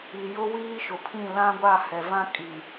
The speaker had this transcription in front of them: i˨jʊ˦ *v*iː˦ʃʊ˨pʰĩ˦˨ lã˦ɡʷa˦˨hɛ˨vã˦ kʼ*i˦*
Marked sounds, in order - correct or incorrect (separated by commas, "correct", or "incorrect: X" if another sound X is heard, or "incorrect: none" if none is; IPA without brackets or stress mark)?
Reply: incorrect: w, incorrect: i˨